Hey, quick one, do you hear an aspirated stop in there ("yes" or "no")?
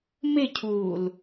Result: yes